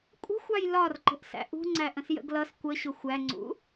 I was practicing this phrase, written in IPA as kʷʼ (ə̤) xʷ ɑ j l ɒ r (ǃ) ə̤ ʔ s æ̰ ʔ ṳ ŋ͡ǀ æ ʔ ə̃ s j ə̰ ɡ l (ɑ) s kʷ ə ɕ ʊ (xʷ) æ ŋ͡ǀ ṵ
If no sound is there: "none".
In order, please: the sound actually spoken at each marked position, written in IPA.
ə̤, ǃ, ʌ, xʷ

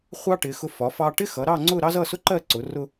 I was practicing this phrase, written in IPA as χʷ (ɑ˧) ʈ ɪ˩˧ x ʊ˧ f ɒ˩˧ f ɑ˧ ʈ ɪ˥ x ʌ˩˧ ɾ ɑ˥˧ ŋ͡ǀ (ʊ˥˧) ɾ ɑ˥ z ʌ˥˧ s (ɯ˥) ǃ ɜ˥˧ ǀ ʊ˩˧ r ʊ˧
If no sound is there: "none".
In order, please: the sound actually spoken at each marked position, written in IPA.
ɑ˥, ʊ˥˧, ʊ˥

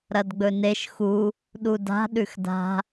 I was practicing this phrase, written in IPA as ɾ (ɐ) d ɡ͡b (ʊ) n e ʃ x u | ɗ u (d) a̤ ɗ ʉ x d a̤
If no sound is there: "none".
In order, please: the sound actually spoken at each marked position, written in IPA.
ɐ, ɵ, d

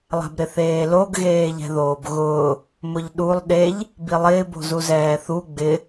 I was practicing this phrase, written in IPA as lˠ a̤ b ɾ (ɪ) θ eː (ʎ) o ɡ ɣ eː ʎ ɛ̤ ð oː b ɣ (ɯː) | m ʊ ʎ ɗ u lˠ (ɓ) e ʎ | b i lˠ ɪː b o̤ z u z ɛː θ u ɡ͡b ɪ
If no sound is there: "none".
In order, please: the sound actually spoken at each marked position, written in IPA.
ɪ, l, ʊː, ɗ

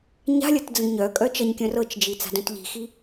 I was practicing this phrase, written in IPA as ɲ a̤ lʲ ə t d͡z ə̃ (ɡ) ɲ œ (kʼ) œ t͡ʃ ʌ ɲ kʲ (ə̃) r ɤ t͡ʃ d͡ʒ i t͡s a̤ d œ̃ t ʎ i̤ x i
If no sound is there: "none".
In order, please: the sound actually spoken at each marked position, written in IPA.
ɡ, kʼ, œ̃

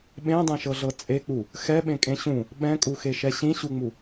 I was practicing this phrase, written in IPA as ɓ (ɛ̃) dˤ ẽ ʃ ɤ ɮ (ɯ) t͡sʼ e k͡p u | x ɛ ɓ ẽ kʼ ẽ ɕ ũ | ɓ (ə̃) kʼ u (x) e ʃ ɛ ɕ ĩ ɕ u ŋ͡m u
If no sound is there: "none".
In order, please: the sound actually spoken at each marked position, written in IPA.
ẽ, ɤ, ɛ̃, x

